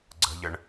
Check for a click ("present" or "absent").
present